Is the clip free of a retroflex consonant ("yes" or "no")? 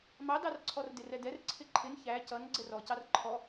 yes